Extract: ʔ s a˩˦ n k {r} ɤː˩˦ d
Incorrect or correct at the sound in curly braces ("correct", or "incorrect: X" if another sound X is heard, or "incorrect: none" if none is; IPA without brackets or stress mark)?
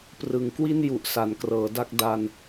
correct